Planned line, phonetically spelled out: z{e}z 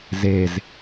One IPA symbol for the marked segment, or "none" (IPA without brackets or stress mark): e